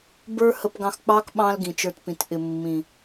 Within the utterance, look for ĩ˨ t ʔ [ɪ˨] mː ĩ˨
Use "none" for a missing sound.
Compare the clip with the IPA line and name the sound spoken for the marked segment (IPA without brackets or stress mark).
ɪ˨